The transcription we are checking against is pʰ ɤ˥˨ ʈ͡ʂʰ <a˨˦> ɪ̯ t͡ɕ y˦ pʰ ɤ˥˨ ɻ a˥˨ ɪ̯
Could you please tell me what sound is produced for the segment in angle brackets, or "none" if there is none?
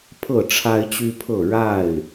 a˦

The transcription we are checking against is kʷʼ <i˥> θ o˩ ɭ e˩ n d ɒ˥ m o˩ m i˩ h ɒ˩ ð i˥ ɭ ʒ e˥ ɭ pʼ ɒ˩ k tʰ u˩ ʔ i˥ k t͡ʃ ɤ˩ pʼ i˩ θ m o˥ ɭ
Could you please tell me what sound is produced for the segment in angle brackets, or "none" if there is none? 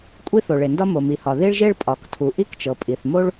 i˥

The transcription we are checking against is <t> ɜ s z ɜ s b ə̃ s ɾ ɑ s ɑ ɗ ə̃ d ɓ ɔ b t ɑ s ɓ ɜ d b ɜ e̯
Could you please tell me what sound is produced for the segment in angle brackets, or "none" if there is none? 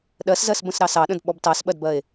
ɗ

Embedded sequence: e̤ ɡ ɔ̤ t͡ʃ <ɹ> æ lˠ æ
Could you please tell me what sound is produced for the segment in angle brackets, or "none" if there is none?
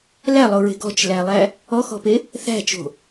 l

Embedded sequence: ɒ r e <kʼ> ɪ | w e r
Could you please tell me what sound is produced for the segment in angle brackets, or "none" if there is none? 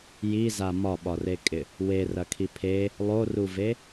kʼ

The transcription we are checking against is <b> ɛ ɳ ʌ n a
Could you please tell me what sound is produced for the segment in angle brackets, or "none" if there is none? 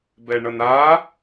b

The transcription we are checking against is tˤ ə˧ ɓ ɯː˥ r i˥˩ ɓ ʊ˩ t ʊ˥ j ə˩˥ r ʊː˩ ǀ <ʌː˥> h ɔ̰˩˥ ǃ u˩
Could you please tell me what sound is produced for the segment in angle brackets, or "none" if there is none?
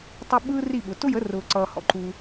ʌː˩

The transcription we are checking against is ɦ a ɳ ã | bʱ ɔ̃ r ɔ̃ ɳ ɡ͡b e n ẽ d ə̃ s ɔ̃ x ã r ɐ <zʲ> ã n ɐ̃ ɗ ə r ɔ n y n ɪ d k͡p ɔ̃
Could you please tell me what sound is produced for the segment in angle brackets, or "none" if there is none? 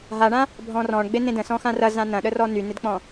z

